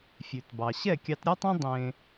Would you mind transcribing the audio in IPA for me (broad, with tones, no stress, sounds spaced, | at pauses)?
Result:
fʲ ʉ˨ t b ɑ˨ ɕ ɛ˦˨ kʲ ɑ˧ t ɾʲ ɔ˦ tˤ ẽ˦ dˤ ẽ˦